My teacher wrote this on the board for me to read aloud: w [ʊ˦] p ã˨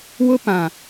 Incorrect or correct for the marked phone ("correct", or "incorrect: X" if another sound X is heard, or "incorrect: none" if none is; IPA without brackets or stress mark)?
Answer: correct